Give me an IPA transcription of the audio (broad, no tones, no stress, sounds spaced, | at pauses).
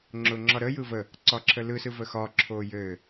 ŋ͡ǁ ʊː ŋ͡ǁ ɒ ɾ ə j ɯ v ə | ǀ ɒ ǁʰ ə l ɯ s ɯ v ə x ɒː ǁʰ oː j ɘː